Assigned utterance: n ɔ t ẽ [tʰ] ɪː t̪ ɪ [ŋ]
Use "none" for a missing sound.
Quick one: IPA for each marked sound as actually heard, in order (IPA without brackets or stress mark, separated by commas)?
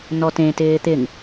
t, ŋ